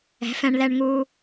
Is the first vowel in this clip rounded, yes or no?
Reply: no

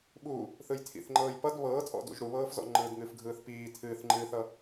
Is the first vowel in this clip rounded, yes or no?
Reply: yes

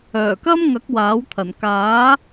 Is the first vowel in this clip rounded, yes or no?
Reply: yes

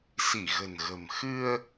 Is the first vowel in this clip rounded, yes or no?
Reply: no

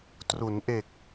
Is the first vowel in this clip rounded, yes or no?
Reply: yes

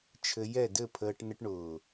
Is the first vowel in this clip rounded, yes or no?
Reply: no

